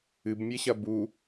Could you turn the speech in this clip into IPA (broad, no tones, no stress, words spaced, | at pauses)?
ɨbmʲeɕɐ bu